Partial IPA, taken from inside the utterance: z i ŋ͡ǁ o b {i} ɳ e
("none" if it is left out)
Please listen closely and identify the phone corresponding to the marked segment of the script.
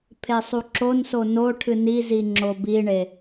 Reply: i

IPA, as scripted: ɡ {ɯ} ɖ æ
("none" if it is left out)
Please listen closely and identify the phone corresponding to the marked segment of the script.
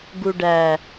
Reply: u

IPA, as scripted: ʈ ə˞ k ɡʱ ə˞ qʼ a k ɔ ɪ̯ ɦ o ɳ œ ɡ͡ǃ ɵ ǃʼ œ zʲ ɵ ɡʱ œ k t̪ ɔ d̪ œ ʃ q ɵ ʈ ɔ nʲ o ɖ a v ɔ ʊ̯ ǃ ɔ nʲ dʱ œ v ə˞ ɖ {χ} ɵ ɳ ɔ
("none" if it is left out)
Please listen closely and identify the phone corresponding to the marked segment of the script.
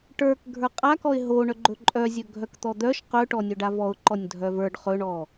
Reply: χ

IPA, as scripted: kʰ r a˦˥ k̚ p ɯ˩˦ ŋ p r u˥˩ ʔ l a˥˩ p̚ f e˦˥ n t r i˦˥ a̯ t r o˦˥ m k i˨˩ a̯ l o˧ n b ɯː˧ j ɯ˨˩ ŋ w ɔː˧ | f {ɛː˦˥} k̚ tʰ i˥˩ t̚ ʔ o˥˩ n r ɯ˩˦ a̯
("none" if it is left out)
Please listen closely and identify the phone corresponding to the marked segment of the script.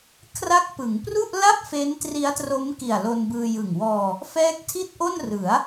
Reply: ɛː˦˥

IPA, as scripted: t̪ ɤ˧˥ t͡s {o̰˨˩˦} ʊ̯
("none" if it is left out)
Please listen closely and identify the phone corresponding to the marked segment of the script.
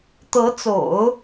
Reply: o̰˨˩˦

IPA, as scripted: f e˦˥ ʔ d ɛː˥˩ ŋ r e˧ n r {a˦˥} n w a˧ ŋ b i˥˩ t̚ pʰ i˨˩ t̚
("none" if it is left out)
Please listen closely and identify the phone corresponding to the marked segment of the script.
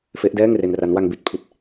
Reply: a˦˥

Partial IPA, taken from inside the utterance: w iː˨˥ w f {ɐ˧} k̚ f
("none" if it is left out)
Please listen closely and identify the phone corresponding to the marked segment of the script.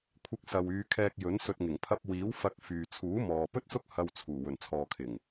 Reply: ɐ˧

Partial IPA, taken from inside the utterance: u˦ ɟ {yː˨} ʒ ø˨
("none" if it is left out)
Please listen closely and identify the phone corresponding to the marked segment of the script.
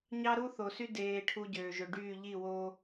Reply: øː˨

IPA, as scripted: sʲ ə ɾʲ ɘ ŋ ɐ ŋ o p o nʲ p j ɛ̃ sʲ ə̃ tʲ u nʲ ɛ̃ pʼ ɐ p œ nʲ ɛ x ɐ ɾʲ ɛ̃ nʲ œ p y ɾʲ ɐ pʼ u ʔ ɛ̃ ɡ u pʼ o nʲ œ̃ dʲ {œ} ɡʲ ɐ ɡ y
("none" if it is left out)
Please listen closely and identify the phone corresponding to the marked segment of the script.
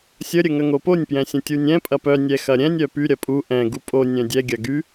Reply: ɛ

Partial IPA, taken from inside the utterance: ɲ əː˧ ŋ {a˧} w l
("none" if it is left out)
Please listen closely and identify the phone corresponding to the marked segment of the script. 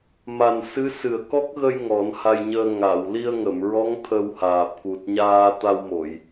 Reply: a˨˩˨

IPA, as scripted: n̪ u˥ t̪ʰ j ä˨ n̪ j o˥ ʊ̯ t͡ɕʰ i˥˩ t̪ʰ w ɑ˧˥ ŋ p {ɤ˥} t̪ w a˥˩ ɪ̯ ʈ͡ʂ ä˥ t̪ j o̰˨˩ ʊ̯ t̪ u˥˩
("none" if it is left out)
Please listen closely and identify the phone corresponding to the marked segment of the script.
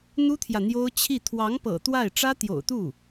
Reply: ɤ̰˨˩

